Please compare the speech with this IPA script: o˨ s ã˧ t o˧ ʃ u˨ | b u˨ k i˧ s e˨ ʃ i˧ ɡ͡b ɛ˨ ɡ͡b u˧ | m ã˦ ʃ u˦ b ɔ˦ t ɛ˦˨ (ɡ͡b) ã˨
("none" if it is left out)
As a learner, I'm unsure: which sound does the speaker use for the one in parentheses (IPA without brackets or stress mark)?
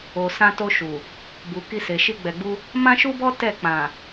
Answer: k͡p